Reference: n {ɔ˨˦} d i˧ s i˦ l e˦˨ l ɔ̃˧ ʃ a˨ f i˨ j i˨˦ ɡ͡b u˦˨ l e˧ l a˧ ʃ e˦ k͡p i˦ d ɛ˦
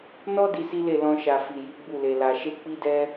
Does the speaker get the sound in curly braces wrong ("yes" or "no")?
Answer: yes